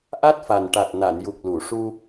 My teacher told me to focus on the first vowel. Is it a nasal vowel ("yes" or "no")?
no